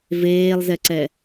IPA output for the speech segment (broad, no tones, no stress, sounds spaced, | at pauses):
v eː lˠ z ɛ ǀ ɛ